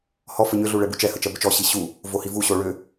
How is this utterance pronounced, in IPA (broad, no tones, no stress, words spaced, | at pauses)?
hɔ fəɲʏɮu ɭɛbut͡ʃɛhə t͡ʃɜbʏt͡ʃɔɕi ɕu | vohivuɕo ɭʏ